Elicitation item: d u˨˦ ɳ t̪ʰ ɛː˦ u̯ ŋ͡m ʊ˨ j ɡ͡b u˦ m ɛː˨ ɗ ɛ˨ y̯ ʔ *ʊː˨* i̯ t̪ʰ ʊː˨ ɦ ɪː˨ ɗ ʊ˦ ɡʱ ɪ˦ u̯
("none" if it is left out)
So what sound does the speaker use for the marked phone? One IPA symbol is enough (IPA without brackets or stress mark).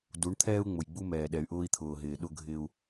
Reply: ʊː˦